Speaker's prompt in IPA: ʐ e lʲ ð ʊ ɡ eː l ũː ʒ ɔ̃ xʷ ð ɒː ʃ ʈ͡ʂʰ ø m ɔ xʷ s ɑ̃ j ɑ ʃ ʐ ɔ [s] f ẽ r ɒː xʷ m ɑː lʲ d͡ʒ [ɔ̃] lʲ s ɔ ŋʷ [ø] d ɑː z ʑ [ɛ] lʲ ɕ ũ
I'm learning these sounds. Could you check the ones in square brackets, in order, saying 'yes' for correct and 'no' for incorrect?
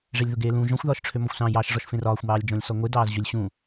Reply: no, yes, no, no

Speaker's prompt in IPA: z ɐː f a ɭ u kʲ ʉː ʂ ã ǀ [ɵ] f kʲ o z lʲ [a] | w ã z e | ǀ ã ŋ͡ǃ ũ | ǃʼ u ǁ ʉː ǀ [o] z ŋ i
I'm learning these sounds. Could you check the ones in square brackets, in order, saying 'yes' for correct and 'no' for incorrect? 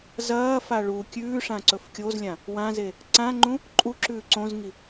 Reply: yes, no, no

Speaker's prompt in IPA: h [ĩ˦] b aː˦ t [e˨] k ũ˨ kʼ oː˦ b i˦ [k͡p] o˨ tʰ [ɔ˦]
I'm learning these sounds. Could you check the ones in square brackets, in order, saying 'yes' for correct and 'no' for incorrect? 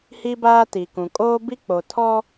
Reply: no, no, yes, yes

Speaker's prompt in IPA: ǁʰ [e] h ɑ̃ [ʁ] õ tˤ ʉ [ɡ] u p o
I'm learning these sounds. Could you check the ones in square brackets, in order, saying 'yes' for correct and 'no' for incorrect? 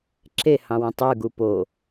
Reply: yes, no, yes

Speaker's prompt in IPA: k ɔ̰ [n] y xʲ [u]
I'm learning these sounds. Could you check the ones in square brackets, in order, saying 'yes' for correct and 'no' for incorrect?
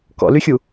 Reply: no, yes

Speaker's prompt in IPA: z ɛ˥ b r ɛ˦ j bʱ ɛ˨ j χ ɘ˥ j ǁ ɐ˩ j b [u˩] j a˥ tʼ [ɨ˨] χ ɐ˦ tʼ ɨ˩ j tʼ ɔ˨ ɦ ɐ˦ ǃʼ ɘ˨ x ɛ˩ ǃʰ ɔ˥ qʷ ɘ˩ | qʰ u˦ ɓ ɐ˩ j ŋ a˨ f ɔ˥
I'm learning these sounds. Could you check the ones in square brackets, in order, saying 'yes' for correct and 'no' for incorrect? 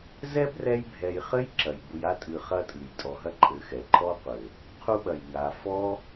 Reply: no, yes

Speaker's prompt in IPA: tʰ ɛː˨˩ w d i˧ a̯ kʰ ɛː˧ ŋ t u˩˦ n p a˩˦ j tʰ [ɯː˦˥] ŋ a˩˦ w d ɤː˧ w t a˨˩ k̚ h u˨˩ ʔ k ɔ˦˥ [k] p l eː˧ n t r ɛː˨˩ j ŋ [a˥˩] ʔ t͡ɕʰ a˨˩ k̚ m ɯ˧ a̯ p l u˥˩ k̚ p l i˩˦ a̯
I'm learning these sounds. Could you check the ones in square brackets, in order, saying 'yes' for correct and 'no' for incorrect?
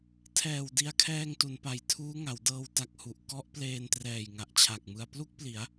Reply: no, no, no

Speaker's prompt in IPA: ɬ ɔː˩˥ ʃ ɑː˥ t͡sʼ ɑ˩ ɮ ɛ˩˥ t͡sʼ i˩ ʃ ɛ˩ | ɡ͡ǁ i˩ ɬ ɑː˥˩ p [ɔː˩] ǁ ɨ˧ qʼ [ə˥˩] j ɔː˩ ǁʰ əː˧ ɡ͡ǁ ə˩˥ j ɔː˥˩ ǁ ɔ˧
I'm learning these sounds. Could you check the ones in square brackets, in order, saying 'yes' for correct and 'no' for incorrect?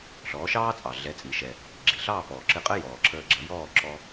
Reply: yes, no

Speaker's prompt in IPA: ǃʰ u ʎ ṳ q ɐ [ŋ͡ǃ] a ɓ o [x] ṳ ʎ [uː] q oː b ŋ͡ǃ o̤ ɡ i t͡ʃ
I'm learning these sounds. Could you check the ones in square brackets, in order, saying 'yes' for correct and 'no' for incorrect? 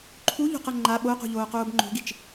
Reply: yes, no, no

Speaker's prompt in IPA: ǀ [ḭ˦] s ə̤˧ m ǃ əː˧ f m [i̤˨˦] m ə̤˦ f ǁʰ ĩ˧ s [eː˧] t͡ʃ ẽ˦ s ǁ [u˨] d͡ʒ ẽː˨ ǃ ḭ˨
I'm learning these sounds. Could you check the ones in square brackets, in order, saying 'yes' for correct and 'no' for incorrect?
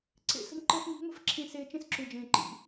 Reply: no, yes, yes, yes

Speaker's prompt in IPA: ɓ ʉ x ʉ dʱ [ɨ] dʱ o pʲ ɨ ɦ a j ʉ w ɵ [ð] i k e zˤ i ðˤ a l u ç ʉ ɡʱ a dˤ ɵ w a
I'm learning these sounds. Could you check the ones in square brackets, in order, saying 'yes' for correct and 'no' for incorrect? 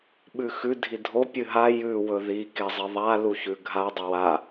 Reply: no, yes

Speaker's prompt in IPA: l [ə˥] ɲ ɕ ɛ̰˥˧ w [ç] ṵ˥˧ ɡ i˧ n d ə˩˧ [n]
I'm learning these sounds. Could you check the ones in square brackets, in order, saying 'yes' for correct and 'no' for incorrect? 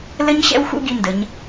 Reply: yes, no, no

